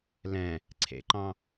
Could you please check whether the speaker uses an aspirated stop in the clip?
yes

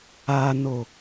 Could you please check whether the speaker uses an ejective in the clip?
no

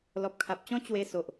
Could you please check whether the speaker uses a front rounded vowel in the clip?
no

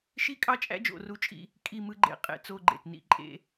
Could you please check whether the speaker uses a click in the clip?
yes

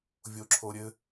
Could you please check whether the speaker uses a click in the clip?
yes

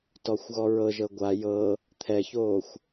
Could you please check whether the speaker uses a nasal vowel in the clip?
no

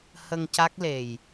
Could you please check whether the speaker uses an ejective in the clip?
no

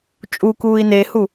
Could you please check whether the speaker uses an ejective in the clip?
yes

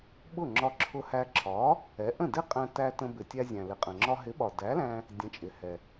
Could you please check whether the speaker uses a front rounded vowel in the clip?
no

